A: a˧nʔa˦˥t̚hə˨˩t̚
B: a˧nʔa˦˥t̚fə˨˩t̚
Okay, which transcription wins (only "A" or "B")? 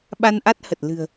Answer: A